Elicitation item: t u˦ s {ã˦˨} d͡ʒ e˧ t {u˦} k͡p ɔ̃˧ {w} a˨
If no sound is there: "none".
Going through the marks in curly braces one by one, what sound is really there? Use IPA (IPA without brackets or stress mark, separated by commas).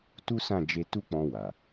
ã˦˨, u˦, w